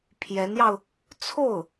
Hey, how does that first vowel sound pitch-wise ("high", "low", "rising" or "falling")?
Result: rising